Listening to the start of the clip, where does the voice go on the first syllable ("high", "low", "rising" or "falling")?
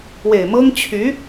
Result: low